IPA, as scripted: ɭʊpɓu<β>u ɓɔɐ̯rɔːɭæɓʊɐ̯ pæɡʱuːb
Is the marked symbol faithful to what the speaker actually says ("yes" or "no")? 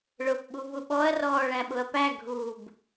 yes